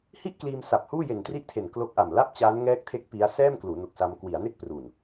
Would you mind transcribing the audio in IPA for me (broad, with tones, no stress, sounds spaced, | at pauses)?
h i˥˩ ʔ k l iː˧ m s a˨˩ p̚ h uː˥˩ j e˨˩ n t r i˥˩ ʔ tʰ e˨˩ n k l o˦˥ k̚ ʔ a˨˩ m l a˥˩ p̚ t͡ɕ aː˦˥ n ŋ ɛː˦˥ k̚ tʰ e˦˥ k̚ p i˦˥ a̯ s ɛː˥˩ m k l uː˩˦ n o˨˩ k̚ s a˧ m k w i˩˦ a̯ n e˥˩ k̚ p r u˨˩ n